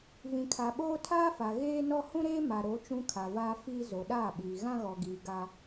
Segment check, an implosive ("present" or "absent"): present